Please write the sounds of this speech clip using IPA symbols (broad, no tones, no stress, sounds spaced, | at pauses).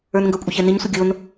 ə˞ n ŋ ɡ ə kʷʼ ə ç ɛ n i ɲ sʷ ə ɡʲ o n